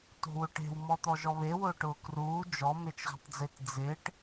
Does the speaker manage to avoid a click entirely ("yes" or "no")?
yes